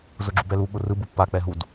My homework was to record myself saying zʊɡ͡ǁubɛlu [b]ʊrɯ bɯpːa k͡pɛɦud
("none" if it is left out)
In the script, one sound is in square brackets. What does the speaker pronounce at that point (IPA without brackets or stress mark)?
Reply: ɓ